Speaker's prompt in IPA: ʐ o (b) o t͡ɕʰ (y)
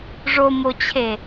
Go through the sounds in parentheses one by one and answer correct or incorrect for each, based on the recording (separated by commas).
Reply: incorrect, incorrect